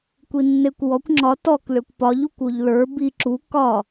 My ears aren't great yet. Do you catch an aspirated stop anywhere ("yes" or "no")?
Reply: no